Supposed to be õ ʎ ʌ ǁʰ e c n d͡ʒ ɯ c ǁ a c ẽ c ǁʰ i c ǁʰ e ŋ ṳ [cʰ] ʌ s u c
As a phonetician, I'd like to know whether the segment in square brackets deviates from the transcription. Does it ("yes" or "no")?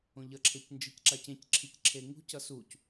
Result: yes